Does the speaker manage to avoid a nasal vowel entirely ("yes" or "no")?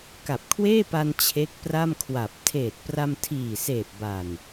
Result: yes